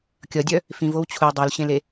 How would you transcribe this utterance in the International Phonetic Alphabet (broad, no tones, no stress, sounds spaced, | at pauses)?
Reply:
kʲ ʌ dʲ œ | f ĩ v o w t͡ɕʰ u dˤ o l ɕ ẽ l e